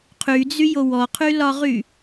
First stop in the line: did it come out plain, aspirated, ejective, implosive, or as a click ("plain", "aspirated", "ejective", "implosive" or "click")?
aspirated